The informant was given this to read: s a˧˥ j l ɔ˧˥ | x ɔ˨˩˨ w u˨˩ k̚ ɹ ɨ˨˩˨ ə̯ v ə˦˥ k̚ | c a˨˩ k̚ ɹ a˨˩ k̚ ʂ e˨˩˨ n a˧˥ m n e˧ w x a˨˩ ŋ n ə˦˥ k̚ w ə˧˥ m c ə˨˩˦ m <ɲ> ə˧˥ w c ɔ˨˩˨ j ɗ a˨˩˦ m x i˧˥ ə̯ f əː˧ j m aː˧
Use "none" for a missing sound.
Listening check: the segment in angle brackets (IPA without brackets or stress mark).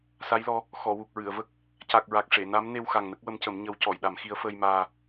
ɲ